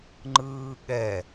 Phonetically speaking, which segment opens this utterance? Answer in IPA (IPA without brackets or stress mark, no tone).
ŋ͡ǃ